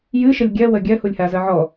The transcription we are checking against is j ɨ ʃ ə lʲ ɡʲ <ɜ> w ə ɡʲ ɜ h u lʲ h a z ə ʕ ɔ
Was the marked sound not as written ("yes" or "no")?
no